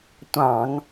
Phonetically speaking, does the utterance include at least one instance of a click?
no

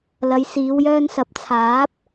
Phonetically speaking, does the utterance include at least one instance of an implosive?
no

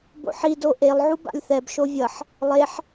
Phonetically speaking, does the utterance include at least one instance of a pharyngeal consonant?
yes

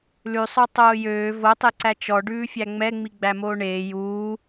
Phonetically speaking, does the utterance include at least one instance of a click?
yes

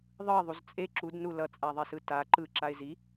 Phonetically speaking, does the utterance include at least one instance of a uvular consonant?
no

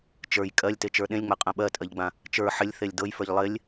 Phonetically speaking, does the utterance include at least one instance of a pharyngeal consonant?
yes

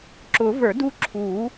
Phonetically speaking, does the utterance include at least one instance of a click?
yes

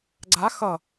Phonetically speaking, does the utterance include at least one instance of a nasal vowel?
no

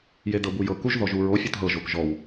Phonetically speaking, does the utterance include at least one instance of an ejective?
no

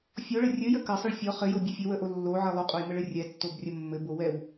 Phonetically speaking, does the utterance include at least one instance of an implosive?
no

